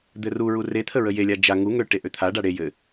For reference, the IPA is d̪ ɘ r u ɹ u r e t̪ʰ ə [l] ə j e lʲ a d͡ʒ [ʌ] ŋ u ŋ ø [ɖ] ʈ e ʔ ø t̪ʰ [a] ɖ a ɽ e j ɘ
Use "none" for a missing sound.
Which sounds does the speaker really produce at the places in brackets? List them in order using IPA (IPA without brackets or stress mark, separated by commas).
ɹ, a, none, a